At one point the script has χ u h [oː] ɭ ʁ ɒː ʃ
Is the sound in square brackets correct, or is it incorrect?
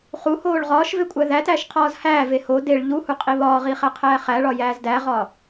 correct